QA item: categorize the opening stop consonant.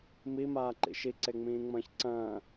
click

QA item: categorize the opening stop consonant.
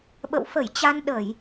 implosive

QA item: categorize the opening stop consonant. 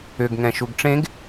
plain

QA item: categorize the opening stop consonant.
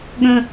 implosive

